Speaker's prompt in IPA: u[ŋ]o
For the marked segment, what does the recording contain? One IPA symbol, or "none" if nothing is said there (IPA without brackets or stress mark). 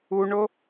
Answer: ɳ